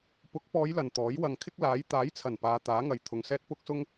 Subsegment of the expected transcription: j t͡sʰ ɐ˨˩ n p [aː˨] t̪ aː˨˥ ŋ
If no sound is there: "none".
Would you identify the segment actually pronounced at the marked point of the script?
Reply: aː˨˧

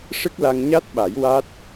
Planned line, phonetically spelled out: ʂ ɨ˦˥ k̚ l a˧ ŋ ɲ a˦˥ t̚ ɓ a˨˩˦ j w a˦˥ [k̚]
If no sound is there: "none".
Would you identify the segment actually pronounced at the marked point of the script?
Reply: t̚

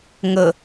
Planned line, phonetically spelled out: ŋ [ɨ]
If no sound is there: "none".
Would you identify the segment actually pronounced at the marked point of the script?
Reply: ə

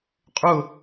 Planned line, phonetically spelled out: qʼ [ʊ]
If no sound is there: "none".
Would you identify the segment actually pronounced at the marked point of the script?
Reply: ʊ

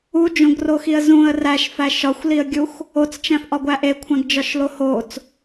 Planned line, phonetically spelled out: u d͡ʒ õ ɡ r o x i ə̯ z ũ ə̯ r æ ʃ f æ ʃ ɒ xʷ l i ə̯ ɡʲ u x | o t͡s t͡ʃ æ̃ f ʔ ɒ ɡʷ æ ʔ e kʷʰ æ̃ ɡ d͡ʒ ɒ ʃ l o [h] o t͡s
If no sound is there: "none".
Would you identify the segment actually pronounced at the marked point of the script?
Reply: h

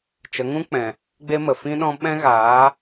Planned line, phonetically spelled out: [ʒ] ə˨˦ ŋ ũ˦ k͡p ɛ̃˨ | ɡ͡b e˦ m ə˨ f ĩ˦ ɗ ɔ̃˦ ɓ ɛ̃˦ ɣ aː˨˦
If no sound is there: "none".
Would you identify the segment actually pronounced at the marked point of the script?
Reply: t͡ʃ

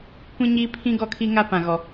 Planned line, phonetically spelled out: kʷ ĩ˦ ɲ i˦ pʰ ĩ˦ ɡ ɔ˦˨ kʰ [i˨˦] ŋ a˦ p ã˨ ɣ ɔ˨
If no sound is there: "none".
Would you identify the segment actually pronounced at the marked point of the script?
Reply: i˦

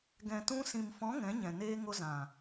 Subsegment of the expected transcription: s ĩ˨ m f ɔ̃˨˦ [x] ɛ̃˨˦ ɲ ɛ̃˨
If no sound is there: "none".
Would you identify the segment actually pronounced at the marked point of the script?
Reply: ŋ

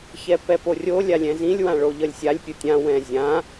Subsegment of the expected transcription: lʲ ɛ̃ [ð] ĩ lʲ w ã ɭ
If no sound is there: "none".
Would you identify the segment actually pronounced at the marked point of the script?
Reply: z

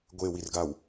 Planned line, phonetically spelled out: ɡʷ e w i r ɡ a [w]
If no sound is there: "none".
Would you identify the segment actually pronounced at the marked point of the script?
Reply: w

